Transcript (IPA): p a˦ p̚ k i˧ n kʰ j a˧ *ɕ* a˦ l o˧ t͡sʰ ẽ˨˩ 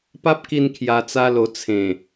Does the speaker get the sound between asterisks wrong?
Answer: yes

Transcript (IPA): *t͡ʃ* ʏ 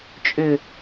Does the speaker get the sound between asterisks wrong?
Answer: yes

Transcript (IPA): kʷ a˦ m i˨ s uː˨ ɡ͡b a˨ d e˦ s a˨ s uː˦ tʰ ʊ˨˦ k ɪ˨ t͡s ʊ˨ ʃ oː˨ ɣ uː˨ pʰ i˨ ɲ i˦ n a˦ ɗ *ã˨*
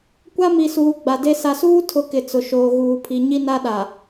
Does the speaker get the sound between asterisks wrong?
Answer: yes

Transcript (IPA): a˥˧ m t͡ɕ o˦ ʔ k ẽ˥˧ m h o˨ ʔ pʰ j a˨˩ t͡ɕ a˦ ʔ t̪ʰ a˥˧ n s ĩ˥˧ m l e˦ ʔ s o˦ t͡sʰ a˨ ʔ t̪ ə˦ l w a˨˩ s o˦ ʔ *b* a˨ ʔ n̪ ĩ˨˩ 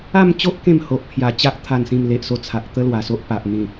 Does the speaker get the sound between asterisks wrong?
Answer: yes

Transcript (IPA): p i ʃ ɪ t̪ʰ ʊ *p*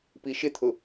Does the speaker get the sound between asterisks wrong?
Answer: yes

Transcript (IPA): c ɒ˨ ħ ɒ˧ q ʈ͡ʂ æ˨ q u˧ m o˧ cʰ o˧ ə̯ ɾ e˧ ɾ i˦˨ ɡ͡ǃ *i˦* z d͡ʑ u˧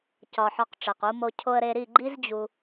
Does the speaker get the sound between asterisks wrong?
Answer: no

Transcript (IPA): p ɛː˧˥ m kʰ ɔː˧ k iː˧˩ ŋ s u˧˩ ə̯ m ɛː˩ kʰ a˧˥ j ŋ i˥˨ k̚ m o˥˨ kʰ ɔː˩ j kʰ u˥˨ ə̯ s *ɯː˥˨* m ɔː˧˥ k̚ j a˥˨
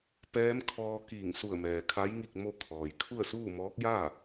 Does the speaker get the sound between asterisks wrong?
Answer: yes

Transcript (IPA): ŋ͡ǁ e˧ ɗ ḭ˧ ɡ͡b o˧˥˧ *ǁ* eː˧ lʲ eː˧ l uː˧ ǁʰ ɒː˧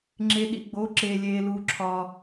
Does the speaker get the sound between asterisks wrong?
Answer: no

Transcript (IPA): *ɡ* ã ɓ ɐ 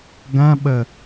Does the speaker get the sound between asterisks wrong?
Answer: no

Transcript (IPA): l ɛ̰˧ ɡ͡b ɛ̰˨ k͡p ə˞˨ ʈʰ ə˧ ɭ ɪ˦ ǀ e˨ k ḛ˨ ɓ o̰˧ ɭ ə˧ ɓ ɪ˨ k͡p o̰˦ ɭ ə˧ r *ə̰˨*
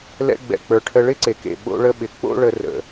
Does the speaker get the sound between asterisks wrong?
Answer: no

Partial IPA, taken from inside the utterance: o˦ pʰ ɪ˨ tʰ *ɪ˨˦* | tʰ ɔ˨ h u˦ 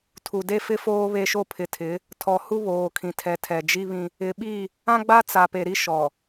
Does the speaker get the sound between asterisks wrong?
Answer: no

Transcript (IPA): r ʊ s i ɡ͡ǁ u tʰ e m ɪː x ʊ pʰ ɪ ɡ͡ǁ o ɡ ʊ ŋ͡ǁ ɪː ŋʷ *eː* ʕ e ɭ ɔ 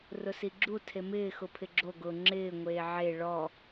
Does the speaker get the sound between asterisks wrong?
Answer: no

